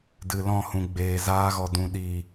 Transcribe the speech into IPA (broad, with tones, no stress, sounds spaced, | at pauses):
d ɨ˨ l ɔ̃˦˨ h ũ˨ ɡ͡b eː˨ z aː˧ ɣ ɔ˨ d ũ˨ ɗ iː˨